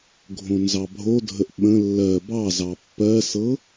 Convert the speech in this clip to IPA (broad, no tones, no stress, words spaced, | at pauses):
ɡʱõnzɑbʱodʱəʔ ɓə̃ lːɜ bɑzɑ pːɜsɤ